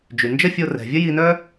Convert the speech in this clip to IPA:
d͡ʒ y˩ n d͡ʒ ə˥ fʲ o˧ r ɛ̤˩ vʲ ə˥ j i˧ n œ˥

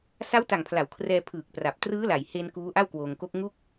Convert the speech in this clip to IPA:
s a˦˥ w t a˨˩ ŋ pʰ l a˩˦ w kʰ r ɛː˧ pʰ ɯː˨˩ k̚ p r a˨˩ p̚ t r ɯː˦˥ l a˨˩ j h e˧ n k uː˦˥ ʔ a˥˩ w k w oː˧ ŋ k o˦˥ k̚ ŋ u˥˩ k̚

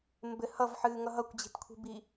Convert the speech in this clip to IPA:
m b ɘ h ʌ v ħ ɨː ŋ ʌ ɦ ʌ kʷ d͡ʑ i̤ t kʷʰ i̤ b i

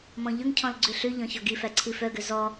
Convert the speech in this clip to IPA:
m ɔ̃ ʎ ɵ ŋ cʰ ɔ̃ l ɡ͡ǀ ʉ ɬ ʉ ʎ ɔ̃ ç ɔ ɡ i f æ ǀʰ i f œ ɡ ø z ɔ

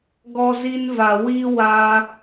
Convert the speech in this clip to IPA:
ɡ ɔ˦ z i˦ n v a˧ w i˦ w a˧

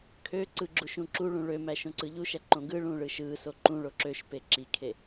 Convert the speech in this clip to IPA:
kʰ ø ǀ ɯ ɡ͡ǁ u ʃ ũ ǁ u ɭ ũ ɭ ø m æ ʃ õ ǀ ɯ ʎ u ʃ æ ǃ õ ɡ ɯ ɭ ũː ɭ ɯ ʃ ɯː s o ǃ ũ ɭ o ǁ ø ʃ p e ǁ i kʰ e

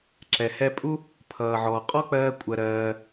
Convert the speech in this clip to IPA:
ǁ ɛ˩ h ɛ˧ pʼ u˥ | pʰ ʌː˩ ʕ ɔː˩ qʼ ɔ˥ k͡p ɜː˧ kʷʼ ɜ˩ ɾ ɜː˩

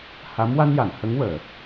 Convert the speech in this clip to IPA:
h a˧˥ m w a˧ n j a˨˩˨ n h ə˧˥ ŋ w əː˨˩˨

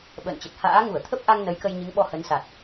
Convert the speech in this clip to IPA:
ɓ ə̰ː˧˨ n t͡ɕ ə˨˩ t̚ h a̰ː˧˥ ŋ u˧˩ ə̯ t̪ʰ ə˦˥ p̚ ʔ a˧ ŋ n ə˨˦ j k ə˧ j ɲ ɨ˨˦ ŋ ɓ ɔ˧ h ə˨˦ n s a˨˩ t̚

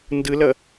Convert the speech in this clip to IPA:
n d ɯ l ʌ

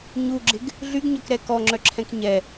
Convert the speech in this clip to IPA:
ɲ u ɡ͡ǁ ɪ ɡ | ɮ y ɡ ɲ œ k ɾ ɛ k ɔ ŋ͡ǁ œ ǁʰ ɛ̃ k ɲ ɛ

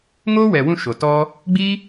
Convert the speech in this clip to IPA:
ŋ oː˦ w ɛ˨ w ũ˧ ʃ o˨ t ɔ˦ | ɡ͡b i˦

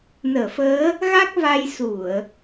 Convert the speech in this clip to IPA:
n əː˧˩ f əː˨˦ | ɣ a˦˥ k̚ v a˧ j s u˧˩˨ ə̯

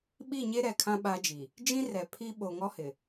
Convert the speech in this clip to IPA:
ɓ i˦˨ ɲ e˦ ɾ ɛ˨ kʰ ã˦ ɓ a˦ d͡ʒ i˨ | d͡ʒ ĩ˦ r ɛ˨ pʰ i˦ ɓ o˨ ŋ ɔ˦ h ɪ˨

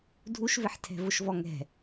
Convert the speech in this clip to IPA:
dʱ u ʃ v ɪ ħ tʰ ɛ̤ v ʊ ʃ v ɔ ŋ ɛ̤

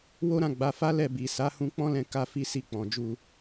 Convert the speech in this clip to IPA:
w o˦ ɾ ã˦˨ ɡ͡b a˨˦ f a˦ l ɛ˦˨ b i˨ s a˨˦ h ũ˧ k͡p ɔ̃˦ l ɛ̃˧ k a˦ f i˦ s i˦˨ k͡p ɔ̃˨ d͡ʒ u˧

